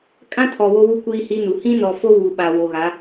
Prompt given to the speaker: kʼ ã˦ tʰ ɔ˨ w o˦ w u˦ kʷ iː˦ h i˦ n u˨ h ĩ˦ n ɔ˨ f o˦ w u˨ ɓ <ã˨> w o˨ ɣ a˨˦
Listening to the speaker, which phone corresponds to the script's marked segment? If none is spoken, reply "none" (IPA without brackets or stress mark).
a˨